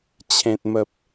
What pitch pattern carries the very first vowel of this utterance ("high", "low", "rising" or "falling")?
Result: low